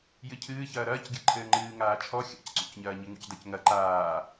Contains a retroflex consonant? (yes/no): no